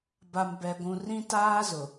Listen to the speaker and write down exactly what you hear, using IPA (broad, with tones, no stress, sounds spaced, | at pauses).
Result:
b a˨ m b ɛ˨ ɡʷ ũ˨ r ĩ˦ t aː˦ z ʊ˨